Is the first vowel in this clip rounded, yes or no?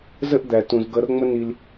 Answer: no